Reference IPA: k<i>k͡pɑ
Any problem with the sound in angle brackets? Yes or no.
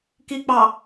no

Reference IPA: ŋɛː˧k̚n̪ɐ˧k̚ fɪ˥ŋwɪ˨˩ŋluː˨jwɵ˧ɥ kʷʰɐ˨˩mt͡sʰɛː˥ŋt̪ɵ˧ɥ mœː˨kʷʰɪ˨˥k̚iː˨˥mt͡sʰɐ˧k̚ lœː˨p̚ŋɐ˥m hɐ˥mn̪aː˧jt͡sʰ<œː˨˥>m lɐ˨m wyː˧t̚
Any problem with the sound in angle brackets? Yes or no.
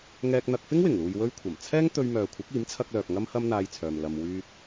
yes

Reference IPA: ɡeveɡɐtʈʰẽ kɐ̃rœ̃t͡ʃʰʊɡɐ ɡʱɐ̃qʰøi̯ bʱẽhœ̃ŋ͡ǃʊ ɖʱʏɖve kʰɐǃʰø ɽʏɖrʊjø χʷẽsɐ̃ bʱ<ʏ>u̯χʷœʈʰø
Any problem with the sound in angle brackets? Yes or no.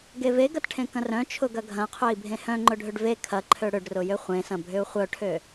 no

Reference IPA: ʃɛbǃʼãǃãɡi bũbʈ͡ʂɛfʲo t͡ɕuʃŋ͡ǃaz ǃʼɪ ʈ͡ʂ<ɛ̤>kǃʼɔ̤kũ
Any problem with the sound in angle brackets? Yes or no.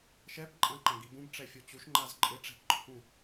no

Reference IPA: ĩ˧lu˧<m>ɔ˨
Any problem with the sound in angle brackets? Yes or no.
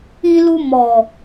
no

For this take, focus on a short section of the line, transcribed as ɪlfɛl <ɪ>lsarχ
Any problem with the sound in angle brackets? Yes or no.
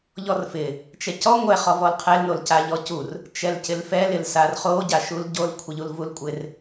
no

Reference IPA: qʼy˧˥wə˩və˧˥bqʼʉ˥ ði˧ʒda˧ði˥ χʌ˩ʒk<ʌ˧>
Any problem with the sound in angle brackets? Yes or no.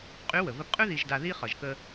yes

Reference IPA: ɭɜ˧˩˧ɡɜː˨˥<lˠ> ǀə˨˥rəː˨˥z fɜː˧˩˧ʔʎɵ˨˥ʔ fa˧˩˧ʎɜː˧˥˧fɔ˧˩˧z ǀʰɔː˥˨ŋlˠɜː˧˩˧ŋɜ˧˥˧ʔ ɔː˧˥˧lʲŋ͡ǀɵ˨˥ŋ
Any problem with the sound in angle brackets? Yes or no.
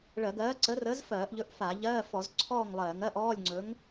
yes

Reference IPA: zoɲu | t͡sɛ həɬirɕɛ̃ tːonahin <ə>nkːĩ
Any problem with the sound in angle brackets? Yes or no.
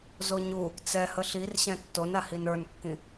yes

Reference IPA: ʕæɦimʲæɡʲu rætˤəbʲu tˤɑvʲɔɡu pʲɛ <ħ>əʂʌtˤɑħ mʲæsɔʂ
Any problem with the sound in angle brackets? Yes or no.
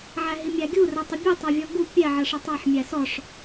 yes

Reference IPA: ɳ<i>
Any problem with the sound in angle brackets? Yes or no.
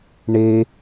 yes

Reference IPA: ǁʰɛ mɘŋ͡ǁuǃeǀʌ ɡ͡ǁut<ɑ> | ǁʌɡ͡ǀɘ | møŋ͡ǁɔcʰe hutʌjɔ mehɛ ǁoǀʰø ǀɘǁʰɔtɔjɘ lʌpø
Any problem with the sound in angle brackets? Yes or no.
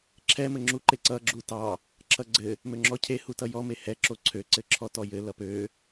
no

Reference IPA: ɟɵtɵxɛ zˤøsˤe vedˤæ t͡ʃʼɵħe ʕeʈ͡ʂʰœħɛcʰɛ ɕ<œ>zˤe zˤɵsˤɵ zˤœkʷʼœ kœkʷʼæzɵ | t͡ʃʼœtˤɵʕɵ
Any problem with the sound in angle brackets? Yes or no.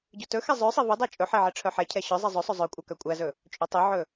no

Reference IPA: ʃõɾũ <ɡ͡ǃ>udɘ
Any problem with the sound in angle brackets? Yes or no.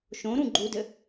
no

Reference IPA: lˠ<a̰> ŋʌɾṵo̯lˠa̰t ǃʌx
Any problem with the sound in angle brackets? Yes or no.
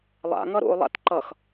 no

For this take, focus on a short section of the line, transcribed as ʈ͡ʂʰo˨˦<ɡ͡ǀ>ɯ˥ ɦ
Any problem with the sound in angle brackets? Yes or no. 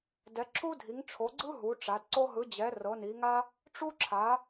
no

